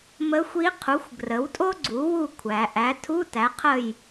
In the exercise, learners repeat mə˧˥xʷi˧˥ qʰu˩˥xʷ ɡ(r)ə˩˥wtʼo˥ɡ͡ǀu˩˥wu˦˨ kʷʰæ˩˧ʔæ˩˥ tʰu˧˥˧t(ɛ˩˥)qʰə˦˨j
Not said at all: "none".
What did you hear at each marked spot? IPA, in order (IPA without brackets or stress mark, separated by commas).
r, æ˩˥